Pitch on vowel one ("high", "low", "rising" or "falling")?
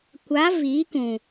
rising